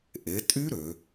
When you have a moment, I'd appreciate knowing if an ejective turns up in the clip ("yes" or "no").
yes